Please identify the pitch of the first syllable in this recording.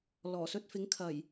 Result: low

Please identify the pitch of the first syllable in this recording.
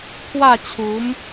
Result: falling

